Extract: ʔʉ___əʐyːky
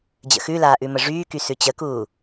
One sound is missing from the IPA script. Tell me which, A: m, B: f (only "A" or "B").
A